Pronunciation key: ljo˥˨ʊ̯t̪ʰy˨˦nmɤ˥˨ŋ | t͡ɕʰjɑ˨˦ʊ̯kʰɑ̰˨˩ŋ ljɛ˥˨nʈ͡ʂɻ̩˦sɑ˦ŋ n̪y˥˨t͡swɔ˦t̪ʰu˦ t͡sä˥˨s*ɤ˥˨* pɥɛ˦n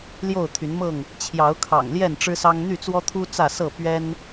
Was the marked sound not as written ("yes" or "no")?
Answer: no